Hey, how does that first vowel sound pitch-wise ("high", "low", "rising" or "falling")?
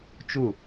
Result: falling